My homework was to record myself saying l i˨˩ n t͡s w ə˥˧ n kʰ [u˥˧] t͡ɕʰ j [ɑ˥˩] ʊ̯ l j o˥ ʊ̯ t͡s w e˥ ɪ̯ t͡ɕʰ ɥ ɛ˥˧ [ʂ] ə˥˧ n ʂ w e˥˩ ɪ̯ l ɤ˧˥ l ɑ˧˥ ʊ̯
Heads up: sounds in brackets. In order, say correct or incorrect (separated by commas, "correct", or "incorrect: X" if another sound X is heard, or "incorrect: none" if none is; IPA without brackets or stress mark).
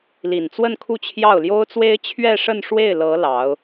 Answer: correct, correct, correct